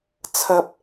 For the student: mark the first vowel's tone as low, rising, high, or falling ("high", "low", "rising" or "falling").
high